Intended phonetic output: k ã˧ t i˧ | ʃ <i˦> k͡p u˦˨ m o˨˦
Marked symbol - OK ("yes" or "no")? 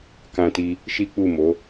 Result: yes